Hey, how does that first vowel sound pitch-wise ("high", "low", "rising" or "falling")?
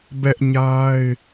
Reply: high